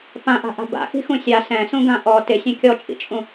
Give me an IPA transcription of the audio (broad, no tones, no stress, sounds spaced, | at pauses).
p ã ʔ a̤ ʔ a̤ b a̰ x i̤ x ũ sʲ a s ɛ̃ s ũ ɡ ã ʔ ɔ t ɪ sʲ ɛ̃ kʲ ɔ t͡ʃʼ ḭ t͡ʃʼ ũ